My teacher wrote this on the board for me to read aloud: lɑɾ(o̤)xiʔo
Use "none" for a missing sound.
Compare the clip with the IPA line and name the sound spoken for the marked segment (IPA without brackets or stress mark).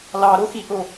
o